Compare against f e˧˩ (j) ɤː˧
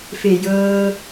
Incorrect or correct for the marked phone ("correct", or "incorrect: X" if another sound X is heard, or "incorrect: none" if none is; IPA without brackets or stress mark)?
correct